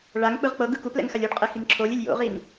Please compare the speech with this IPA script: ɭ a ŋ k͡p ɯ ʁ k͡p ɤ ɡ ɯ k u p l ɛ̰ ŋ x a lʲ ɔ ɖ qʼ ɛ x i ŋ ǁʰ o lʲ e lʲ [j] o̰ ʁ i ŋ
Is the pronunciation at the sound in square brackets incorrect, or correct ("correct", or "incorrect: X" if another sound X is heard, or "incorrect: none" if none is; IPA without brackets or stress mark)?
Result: correct